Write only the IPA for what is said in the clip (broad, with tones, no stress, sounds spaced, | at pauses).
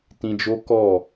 t ĩ˧ d͡ʒ o˦ k ɔ˦˨